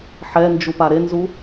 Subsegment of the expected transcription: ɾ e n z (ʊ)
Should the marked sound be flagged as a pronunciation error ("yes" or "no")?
yes